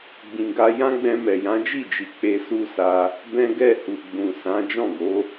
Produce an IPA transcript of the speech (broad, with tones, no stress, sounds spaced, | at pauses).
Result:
ɡ͡b ĩ˨ ɡ a˧ j ã˦ ɡ͡b ɛ̃˧ m ɛ˨ j ã˨˦ d͡ʒ i˦˨ d͡ʒ i˨ k͡p e˧ s u˦ s a˧ | b ɛ̃˦ ɡ ɛ˦˨ h u˨ ɡ͡b ũ˨ s ã˨˦ d͡ʒ ɔ̃˦˨ ɡ o˨˦